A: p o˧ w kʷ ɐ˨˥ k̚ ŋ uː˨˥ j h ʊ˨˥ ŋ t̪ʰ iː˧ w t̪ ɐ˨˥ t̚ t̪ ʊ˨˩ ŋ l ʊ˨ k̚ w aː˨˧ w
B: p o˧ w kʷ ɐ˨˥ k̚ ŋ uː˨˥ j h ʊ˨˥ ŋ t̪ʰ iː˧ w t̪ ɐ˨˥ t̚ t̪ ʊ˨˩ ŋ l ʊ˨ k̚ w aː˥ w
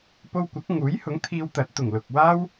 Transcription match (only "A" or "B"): B